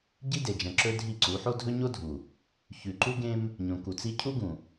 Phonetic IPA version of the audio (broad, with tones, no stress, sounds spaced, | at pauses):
ɟ i˦ d e˨ d͡ʒ ɐ̃˨ ǁ ɵ˦ dʱ i˦˨ ǀ u˨˦ ħ o˦ dʱ ɵ˦ ɲ o˦ dʱ u˨ | ç ʉ˨ ǃ u˦ ɡ ẽ˦ m | ɲ õ˨ k u˨ t͡s i˦ cʰ u˦ ɡ ũ˨